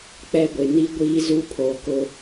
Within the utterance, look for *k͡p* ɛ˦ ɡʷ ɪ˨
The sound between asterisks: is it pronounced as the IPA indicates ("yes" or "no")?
yes